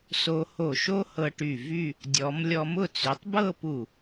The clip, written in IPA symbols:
s o˧ h o˧˩ ʃ o˥ h ɤ˧ ʈ y˧˩ v y˥˧ | dʲ ɔ˩˧ m lʲ ɔ˧ m ʊ˥˧ t͡s y˩˧ tˤ b ɤ˥˧ p u˧˩

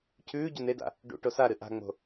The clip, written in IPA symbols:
cʰ ʉː ɟ o n e d a̰ | ɖ ṵ ʈ o s a ɾ ɨ ʔ a̤ ŋ͡m o̤

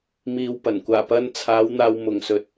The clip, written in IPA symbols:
m iː˨ w p ɐ˨˩ n kʷ aː˨˩ p ɐ˧ n t͡sʰ aː˨˧ w n̪ aː˨ w m ʊ˨˩ ŋ s ɵ˨˥ t̚

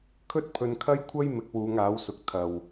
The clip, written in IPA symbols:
kʰ ɵ˥ t̚ pʰ ɵ˨ n kʰ ɐ˥ j kʷʰ ɐ˥ j m ɪ˨˥ k̚ w uː˨˧ ŋ aː˨˥ w s ʊ˨ k̚ t̪ʰ ɐ˨˩ w

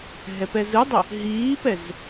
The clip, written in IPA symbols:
ɦ ɛ p ɛ z ɯ dˤ ɵ | ɦ iː p ɛ z

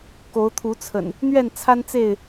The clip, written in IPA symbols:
k o˨˦ ʊ̯ t̪ʰ u˨˦ t͡sʰ ə̰˨˩ n | n̪ ɥ ɛ˥˨ n t͡sʰ a˦ n t͡s e˥˨ ɪ̯

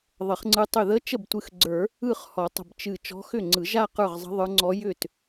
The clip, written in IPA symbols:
ðˤ ə˨˩˦ χ ŋ͡ǀ ɯ˧˥ tˤ ʏ˧˩ ð ə˧˥ t͡ʃ ə˥˩ b tʷ ɨ˧˩ x ɡ͡ǀ ə˞˨˩˦ | ɯ˥˩ χ h ɔ˨˩˦ tˤ ə̤˧˩ b t͡ʃ ɨ˧˩ t͡ʃ ɔ̤˧˥ x ʏ˥˩ ŋ͡ǀ ɯ˨˩˦ ʒ a˥˧ q ə˞˥˩ ʁ zˤ ə̤˧˥ ðˤ ə˞˧˥ ŋ͡ǀ ɔ˧˥ j ʏ˥˩ t

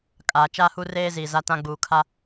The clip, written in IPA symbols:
kʼ aː˨ t͡ʃ aː˦ h u˦ r eː˦ z i˨ z a˦ t ã˦ ɡ͡b uː˨ kʰ a˦

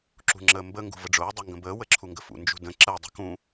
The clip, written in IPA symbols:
ǁ ṳ ŋ͡ǁ əː m b ə ŋ ɡ ṳ v ə ɖ͡ʐ ʊː dˤ u ŋ ɡ ə̃ b əː w ə ǁʰ u ŋ ɡ ə f ṵ n d͡ʒ ṳ d ə̃ ǁ əː dˤ ṳ k ũ

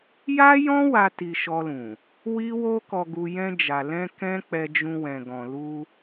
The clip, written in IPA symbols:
j a˦ j ɔ̃˦ w a˧ t i˧ ʃ ɔ˧ l ũ˨ | w i˦ w o˦ k ɔ˧ ɡ u˧ j ɛ̃˧ d͡ʒ a˨ l ɛ̃˧ k ɛ̃˦ k͡p ɛ˧ d͡ʒ ũ˧ w ɛ̃˨ ɡ ɔ̃˨ l u˧

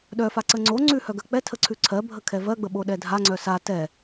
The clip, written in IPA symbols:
ɗ œ f a ǀ ə ŋ͡ǀ o ŋ͡ǀ ʉ h œ ɡ ɜ k͡p ɛ tʰ ə ǀʰ ʉ ǀʰ ɜ bʱ ə kʰ ɛ v ɜ ɡ͡b ə ɓ o ɗ ɛ dʱ a ŋ͡ǀ œ s a t ɛ

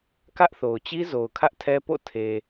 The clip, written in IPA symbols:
k ä˦ ʔ θ o˨ ʊ̯ t͡ɕ i˦ z o˨ ʊ̯ kʰ ä˦ ʔ tʰ ɛ˦ p o̰˦˨ tʰ e˨

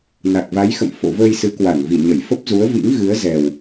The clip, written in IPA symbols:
n a˨˩ k̚ v a˨˦ j x ə̰˧˨ m f o̰˧˨ v əː˧ j s ɨ˨˦ k w a˧˩ n v i˧˩ ɲ ə˧˩ j f ə˦˥ p̚ z u˨˦ ə̯ v ḭ˧˥ ŋ ɣ ɨ˨˦ ə̯ z ɛ˨˩ w

